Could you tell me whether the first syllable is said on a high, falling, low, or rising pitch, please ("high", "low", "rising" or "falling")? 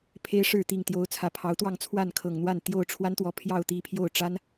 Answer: high